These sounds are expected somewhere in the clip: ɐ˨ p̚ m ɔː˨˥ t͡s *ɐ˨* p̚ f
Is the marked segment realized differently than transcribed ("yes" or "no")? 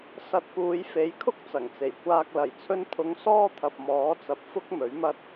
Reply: no